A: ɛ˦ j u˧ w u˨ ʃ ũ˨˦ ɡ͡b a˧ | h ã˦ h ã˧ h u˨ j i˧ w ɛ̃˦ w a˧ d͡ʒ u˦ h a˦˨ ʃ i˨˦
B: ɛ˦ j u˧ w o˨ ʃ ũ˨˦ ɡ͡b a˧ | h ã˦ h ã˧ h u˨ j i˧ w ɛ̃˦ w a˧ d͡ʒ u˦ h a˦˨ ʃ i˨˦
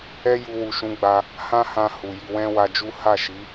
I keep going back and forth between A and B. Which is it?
A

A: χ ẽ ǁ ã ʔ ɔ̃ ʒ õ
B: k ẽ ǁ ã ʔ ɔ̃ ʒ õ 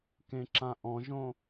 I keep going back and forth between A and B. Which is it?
B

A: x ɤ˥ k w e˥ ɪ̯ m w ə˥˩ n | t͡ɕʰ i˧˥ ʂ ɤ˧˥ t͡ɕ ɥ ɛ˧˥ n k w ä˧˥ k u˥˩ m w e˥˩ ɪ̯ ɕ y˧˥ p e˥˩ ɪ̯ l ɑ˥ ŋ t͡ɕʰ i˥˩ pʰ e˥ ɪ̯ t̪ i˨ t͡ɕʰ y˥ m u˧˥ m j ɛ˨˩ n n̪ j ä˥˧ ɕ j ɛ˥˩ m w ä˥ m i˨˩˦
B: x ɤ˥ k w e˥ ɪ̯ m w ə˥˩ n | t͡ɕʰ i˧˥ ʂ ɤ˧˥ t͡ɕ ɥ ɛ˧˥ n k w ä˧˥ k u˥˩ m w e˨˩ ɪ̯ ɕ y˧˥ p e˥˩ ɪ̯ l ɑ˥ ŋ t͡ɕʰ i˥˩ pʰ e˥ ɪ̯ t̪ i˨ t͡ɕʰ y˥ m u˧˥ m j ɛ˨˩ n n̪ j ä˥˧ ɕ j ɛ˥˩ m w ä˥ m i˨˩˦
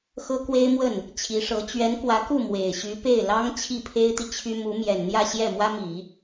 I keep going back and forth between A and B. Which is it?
B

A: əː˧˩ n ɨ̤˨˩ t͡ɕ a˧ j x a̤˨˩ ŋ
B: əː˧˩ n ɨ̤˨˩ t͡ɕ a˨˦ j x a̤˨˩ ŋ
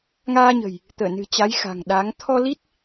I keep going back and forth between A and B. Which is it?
B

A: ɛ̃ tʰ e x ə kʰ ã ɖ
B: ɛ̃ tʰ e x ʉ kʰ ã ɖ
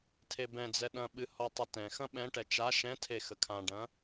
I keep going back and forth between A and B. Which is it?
A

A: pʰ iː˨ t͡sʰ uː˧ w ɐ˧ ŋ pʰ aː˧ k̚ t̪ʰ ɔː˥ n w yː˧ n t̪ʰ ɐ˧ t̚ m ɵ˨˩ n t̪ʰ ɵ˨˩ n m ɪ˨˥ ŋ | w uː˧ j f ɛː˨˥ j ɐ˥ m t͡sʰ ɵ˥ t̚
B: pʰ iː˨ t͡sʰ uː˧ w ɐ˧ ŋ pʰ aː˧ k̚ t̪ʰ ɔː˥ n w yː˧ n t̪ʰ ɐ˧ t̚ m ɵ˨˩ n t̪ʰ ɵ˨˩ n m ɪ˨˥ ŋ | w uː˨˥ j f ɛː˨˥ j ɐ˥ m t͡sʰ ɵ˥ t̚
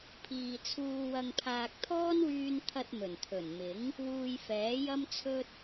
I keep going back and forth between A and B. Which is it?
A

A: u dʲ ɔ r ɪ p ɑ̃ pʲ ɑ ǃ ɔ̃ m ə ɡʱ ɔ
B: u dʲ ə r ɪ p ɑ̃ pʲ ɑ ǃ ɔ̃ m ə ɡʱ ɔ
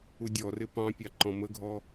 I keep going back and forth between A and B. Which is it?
A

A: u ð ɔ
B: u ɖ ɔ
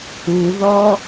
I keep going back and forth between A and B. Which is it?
A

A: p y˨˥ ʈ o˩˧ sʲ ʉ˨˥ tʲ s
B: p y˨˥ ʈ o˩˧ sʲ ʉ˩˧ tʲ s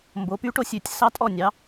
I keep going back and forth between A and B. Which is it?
B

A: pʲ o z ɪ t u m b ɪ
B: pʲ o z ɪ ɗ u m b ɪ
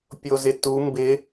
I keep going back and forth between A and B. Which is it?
A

